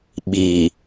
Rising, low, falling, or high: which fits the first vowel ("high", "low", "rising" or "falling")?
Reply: low